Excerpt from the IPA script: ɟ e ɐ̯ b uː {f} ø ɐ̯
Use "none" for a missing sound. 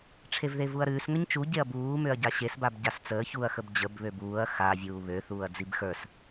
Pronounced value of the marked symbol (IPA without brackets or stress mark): m